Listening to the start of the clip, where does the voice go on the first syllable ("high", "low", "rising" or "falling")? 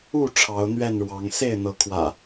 falling